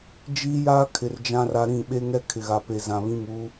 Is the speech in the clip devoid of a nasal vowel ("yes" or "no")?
no